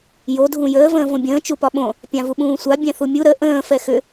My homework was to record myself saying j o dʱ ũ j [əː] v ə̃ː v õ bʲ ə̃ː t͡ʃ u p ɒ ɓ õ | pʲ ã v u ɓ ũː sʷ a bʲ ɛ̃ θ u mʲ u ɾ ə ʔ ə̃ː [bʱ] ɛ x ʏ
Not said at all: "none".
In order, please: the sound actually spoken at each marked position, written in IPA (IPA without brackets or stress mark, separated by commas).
əː, f